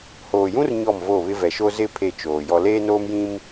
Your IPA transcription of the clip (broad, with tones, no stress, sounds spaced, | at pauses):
h oː˨ j ũ˦ r ɲ ɔ˦˨ m v o˦˨ β ɪ˦ v ɛ˨ ʃ o˦ z ɪ˦˨ pʰ e˦˨ t͡ʃ oː˨ j ɔ˦ l eː˦ n oː˦ m j ĩ˦ m